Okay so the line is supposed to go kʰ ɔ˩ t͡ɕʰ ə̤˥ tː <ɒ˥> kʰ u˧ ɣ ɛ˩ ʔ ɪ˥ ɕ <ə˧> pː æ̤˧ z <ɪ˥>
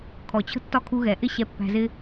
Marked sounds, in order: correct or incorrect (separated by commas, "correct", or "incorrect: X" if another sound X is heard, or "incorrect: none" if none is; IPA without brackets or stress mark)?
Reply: correct, incorrect: ɛ˧, correct